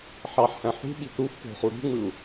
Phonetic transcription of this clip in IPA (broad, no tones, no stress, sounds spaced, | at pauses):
ħ ɑ ħ h æ̃ ħ ṳ ɓ i p ɾ u f p o̤ χ u ɾ ṳ ŋ͡m ɯ u̯